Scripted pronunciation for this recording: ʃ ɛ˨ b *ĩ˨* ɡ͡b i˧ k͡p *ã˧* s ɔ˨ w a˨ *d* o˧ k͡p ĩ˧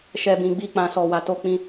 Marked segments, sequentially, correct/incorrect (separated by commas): correct, incorrect, incorrect